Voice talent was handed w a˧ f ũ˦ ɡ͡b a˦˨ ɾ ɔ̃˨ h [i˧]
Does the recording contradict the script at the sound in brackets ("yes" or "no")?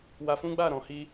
no